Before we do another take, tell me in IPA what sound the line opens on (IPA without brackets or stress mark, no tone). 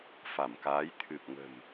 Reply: f